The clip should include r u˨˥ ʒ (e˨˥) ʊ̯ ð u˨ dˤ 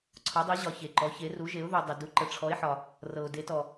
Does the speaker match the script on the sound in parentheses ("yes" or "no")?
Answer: yes